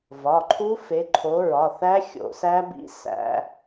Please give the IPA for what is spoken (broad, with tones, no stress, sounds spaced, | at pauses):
v ɒ˩˧˩ ǃʰ u˦˥ f e˨˦ ǃʰ o˨˦ ɹ ɒ˩˧˩ θ æ˦˥ xʲ o̰˧˩˧ s æ˦˥ b ḭ˦˥ s æ̰˦˥